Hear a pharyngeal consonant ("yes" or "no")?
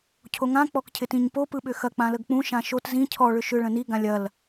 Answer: no